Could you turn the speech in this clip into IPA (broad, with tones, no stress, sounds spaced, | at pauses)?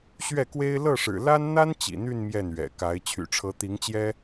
ɕ ɥ ɛ˥˩ k w e˥ ɪ̯ l ɤ˥˩ ʂ ɻ̩˨˩ l a˥ n n̪ a˥ n t͡ɕ ḭ˨˩ n̪ y˥˧ n m j ɛ˥˩ n ɥ ɛ̰˨˩ k a˧˥ ɪ̯ t͡ɕʰ y̰˨˩ ʈ͡ʂʰ ɤ˧˥ t̪ i˧˥ ŋ t͡ɕ j ɛ˥